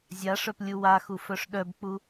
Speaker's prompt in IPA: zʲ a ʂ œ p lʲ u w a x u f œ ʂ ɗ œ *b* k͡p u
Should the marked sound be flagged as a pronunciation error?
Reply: no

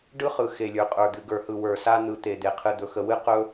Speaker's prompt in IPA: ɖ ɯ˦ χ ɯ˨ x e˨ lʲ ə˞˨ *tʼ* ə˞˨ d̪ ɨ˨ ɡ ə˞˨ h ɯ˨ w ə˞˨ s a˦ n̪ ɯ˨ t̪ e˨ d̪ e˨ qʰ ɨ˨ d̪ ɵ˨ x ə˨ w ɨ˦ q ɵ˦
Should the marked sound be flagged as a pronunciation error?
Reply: yes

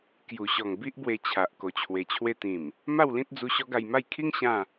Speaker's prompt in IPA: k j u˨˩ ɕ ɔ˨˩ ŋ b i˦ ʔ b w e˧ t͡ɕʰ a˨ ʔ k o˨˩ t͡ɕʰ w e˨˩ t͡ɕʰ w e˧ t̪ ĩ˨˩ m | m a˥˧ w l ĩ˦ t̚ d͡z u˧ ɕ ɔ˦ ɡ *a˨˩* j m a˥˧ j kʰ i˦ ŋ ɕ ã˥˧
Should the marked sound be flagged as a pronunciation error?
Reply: yes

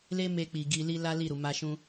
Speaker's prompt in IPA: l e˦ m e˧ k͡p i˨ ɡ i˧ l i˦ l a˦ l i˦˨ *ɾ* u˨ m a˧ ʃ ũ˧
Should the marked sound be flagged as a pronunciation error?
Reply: no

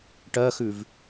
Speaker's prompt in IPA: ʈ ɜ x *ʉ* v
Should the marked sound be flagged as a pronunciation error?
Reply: no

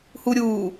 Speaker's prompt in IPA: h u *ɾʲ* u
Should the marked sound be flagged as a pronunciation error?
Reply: no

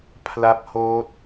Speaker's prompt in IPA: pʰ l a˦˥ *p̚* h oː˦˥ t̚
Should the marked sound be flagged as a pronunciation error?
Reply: no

